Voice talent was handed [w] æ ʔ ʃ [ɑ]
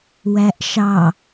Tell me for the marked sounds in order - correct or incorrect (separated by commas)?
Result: correct, correct